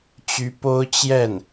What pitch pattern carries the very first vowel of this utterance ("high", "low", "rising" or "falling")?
rising